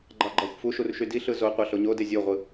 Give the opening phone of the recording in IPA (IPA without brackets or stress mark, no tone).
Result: ɡ͡ǃ